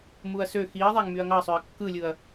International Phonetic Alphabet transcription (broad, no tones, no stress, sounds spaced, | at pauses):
m u ɐ̯ s ø x i ɐ̯ ðˤ æ ŋ m y ɐ̯ ŋ ɑ ɐ̯ sˤ ø ɐ̯ kː ɯ lʲ ɯ ɐ̯